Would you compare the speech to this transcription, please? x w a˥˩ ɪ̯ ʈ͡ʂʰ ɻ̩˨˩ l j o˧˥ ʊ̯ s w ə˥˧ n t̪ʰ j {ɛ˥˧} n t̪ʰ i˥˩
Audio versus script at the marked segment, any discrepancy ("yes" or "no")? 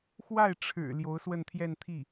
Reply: no